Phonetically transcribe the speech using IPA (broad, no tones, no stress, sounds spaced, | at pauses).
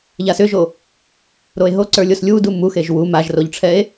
ʎ a s ʏ ʒ o | ɾ o e̯ ɦ o ǀ ə˞ lʲ o s lʲ u d u m u x e ʒ w u m a ʒ r o ʎ ʈ͡ʂʰ ɛ e̯